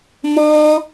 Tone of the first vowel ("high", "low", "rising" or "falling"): high